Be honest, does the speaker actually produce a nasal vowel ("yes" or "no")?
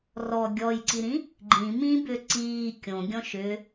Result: yes